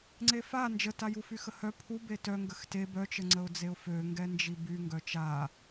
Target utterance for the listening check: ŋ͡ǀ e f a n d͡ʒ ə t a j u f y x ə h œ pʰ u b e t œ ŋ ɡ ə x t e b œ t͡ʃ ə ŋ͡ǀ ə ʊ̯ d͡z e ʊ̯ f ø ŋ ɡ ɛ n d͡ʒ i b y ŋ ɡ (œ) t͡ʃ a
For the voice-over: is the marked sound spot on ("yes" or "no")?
yes